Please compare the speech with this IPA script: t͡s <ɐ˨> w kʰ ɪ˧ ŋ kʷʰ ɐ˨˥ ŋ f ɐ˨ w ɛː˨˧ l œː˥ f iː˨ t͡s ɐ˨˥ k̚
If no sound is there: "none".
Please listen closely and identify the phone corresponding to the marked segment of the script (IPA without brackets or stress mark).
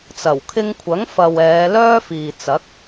ɐ˨˩